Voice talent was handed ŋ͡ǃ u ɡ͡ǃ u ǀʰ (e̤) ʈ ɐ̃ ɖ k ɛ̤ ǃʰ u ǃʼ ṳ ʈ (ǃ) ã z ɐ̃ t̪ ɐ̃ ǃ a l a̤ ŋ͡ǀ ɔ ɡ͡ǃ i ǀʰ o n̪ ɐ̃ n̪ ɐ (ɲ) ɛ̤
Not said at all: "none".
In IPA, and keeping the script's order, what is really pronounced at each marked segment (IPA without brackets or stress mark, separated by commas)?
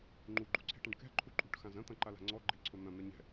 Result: e̤, x, ɲ